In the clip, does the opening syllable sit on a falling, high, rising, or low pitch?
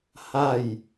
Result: falling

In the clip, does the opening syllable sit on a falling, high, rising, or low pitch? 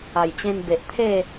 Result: low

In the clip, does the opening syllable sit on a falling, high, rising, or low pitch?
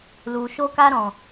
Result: low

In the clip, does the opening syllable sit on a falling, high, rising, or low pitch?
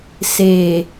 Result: low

